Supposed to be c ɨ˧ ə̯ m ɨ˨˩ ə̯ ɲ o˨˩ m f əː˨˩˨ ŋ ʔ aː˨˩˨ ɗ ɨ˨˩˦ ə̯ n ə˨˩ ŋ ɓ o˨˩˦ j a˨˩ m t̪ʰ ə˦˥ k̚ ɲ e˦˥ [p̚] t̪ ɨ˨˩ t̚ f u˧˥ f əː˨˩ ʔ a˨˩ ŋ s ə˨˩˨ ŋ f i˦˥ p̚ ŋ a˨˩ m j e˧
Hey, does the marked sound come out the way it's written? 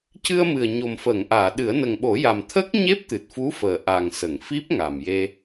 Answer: yes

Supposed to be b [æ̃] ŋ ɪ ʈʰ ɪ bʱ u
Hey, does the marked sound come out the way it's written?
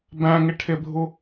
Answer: yes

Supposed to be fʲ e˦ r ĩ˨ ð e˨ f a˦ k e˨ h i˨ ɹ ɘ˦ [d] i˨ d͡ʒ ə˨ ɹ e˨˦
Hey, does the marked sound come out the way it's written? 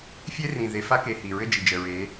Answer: no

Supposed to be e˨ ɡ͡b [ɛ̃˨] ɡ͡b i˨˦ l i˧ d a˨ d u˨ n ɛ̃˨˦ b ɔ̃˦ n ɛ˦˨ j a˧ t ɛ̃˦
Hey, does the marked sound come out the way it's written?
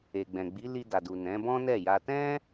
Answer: yes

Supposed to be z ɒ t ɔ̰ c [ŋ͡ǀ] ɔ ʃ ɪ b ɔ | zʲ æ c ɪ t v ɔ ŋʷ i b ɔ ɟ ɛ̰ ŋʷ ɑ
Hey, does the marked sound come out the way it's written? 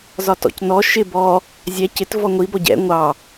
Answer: no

